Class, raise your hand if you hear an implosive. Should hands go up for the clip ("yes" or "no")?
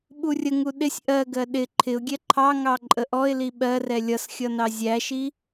yes